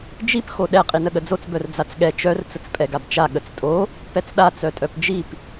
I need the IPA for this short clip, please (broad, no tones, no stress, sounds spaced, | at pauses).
d͡ʒ i p x o ɗ ɛ qʼ i n ə ɠ ə d͡z o t͡s b œ r d͡z a t͡s ɠ ɛ t͡ʃ œ r t͡s ə t͡s pʼ ɛ ɡ a b t͡ʃ a ɠ ə t͡s tʼ o | p ɛ t͡s ɗ a t͡s œ tʼ œ p d͡ʒ i p